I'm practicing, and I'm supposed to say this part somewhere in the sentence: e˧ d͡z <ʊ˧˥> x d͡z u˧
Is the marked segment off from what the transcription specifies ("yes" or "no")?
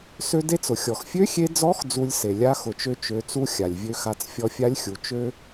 yes